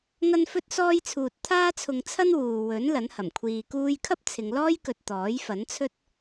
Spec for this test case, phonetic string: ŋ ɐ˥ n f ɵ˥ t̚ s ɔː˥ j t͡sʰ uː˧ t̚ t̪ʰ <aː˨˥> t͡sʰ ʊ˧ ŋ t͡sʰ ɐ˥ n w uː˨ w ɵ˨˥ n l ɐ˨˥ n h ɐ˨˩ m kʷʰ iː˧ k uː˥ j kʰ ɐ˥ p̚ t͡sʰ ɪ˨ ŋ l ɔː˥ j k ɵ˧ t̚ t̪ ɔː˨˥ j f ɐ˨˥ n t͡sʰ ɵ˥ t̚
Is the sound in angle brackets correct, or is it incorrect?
incorrect: aː˥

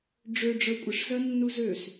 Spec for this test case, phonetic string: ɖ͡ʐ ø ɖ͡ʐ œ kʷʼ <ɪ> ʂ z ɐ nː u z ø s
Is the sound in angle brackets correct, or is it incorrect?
correct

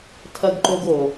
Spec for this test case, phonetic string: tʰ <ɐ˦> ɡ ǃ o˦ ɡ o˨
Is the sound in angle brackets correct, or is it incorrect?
correct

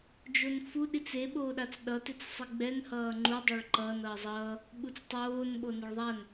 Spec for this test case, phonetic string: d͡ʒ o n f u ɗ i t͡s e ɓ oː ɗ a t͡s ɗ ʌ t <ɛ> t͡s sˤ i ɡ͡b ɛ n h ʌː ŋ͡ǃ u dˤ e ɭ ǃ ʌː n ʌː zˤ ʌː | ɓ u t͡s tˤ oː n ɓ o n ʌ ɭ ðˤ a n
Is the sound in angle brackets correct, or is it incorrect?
incorrect: e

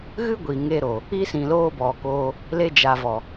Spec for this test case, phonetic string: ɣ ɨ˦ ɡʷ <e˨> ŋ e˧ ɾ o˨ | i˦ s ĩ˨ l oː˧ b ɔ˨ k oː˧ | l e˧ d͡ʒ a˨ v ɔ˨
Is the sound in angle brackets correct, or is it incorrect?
incorrect: i˨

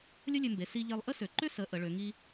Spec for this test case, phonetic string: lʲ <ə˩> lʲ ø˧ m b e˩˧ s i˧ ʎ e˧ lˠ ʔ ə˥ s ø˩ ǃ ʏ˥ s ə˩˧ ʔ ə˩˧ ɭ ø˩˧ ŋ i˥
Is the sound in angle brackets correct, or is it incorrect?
incorrect: ə˥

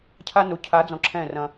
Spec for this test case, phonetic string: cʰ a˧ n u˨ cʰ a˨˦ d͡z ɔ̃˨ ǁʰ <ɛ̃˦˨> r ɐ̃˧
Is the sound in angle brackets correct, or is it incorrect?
correct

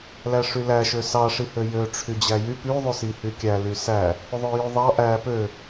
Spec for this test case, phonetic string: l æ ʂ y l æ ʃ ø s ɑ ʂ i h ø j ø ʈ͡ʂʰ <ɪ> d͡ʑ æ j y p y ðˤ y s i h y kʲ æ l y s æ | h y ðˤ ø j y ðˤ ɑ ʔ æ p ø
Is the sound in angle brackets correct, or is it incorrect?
incorrect: y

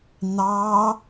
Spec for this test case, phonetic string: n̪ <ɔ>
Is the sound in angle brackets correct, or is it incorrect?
incorrect: ɑ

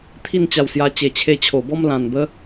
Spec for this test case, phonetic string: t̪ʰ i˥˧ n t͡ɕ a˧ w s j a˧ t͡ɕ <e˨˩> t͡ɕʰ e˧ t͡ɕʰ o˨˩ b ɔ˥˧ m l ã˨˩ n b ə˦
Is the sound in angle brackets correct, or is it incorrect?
correct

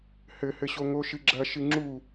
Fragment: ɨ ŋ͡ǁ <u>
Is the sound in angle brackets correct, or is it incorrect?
correct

